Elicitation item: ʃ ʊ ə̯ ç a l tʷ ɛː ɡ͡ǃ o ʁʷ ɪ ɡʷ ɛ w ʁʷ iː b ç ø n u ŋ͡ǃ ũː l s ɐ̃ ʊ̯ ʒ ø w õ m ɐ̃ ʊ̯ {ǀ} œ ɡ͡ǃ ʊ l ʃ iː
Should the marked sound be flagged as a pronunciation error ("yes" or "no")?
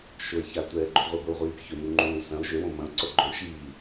no